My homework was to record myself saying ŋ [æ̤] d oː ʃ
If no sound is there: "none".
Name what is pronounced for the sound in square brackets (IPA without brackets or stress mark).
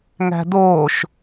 æ̤